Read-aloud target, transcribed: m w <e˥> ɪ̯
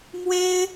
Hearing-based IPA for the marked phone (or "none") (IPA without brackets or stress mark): e˥